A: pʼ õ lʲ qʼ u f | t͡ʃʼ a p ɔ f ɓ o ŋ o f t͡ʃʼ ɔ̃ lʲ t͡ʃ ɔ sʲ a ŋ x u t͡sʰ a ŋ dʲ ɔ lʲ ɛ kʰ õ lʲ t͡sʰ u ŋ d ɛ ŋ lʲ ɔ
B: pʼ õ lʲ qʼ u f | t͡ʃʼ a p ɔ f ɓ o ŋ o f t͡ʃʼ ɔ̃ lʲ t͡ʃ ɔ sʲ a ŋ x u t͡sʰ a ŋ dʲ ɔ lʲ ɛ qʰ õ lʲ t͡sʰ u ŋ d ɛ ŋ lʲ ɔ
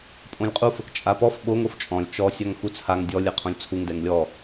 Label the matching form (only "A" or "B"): B